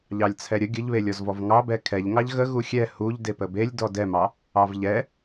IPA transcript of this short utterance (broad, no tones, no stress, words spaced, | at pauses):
ʎɑlʲt͡sʰɛɾʲə ɡʲəʎβelʲɔzvɔv ŋɑbɛ kʰɛʎŋɑʎ ɣə ɣuxʲɛ huʎ depəbelʲ dɔdɛmɑ | ɑvʎɛ